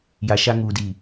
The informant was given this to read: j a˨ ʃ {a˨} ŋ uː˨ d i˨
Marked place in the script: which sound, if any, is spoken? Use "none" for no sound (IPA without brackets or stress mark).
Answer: a˦